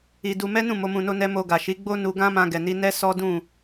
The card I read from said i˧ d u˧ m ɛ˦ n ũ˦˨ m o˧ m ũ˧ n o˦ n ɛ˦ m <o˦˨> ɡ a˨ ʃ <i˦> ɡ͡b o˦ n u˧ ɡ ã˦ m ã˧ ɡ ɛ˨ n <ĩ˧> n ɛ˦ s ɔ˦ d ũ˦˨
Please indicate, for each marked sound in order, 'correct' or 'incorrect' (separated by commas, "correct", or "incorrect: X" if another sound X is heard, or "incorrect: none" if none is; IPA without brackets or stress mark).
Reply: incorrect: o˧, incorrect: i˨˦, incorrect: i˧